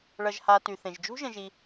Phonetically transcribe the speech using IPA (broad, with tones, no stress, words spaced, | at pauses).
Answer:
ɭʌ˨ʒha˨ty˩θẽ˩ʒ d͡ʒṳ˥ʒə̃˨ʒi˨